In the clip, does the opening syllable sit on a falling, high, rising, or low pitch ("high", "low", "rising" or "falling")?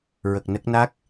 low